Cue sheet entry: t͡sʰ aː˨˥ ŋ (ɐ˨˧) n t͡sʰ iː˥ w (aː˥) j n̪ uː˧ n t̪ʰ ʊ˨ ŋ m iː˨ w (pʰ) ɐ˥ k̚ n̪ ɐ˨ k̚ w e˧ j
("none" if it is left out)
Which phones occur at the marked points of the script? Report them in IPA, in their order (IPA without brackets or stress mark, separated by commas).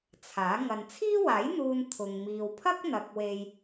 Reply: ɐ˨, aː˨˥, pʰ